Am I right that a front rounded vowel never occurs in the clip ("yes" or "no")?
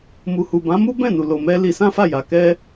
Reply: yes